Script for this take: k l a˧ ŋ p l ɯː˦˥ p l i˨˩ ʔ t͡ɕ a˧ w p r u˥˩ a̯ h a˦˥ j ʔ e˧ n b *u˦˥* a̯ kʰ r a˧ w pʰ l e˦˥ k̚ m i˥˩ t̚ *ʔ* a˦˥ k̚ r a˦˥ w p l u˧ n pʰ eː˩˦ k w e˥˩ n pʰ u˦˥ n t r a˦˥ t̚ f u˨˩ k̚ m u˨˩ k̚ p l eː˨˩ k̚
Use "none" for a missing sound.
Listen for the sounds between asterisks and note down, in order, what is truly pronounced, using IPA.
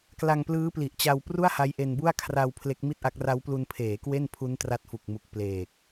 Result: u˥˩, ʔ

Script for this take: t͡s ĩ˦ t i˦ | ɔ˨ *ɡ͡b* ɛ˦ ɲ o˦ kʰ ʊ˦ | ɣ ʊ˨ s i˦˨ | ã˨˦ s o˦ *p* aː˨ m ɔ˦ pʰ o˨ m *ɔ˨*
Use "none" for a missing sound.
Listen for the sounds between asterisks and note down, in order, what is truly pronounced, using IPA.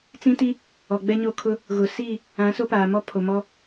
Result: ɡ͡b, p, ɔ˦

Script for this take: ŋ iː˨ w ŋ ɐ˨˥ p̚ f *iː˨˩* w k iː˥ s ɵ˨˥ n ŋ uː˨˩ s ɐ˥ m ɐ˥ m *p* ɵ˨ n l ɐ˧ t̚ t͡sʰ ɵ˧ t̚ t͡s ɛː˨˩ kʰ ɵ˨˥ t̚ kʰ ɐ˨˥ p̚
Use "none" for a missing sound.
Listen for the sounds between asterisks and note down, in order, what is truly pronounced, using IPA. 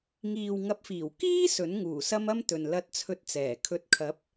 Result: iː˨˩, t̪

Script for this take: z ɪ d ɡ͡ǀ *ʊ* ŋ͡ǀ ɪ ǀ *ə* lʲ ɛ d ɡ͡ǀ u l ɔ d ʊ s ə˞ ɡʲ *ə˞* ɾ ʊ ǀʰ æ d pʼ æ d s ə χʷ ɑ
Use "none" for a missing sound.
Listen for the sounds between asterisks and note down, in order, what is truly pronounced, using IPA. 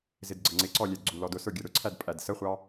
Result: ə, ɔ, ə˞

